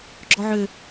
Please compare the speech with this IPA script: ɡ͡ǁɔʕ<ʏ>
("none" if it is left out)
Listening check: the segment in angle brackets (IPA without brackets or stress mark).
ʏ